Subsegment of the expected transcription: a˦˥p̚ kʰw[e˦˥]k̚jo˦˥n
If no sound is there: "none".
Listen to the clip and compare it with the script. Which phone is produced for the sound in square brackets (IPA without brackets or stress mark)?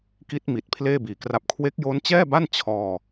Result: e˦˥